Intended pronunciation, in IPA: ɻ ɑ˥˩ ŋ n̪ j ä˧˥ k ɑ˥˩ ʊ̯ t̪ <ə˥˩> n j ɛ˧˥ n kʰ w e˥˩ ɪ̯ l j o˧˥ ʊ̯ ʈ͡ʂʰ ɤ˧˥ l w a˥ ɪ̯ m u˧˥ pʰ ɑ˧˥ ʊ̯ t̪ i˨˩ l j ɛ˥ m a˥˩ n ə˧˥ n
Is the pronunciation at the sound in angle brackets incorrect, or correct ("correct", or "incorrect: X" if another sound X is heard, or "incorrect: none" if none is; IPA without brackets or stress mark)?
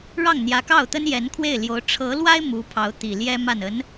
incorrect: ə˥